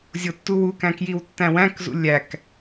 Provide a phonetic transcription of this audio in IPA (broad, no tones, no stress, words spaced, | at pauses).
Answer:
zʲotːuwukæ̃ kjiwtːæ̃wæ̃kzṵ lʲæk